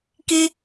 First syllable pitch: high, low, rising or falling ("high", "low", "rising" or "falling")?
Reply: high